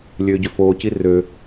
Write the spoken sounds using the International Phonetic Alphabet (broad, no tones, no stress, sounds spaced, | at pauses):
lʲ øː ɟ ø f oː c i r ø